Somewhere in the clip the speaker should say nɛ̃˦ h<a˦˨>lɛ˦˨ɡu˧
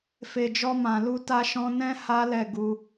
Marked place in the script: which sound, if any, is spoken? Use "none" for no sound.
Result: a˦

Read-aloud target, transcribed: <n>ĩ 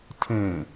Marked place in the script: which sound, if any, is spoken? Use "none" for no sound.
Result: tʰ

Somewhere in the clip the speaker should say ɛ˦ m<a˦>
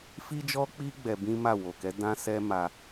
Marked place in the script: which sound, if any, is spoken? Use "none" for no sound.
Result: a˦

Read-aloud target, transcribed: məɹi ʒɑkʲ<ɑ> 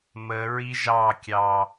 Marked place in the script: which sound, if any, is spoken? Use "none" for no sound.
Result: ɑ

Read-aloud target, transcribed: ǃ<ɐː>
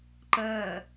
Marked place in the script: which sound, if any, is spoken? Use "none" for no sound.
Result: ɐː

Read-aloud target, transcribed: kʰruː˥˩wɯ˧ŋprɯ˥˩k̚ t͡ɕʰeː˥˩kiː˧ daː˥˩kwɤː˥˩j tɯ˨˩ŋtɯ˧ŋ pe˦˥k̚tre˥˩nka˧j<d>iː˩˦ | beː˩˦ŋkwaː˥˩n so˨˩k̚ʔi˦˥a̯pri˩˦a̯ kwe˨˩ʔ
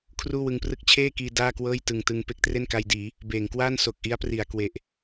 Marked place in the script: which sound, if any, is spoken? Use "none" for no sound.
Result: d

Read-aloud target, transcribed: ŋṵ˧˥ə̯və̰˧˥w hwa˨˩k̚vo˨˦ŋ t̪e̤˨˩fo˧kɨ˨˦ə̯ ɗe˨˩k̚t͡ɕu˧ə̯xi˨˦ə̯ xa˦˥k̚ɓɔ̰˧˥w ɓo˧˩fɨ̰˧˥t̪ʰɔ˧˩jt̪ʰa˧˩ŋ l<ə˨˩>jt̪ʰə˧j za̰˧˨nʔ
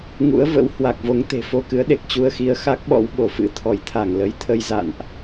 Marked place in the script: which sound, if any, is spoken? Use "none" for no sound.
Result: ə˨˦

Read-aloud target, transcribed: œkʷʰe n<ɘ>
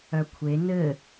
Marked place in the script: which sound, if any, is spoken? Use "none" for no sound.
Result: ɘ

